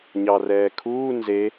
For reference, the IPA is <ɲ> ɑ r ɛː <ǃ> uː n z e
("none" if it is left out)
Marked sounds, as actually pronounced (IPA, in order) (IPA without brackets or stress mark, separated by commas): ɲ, kʰ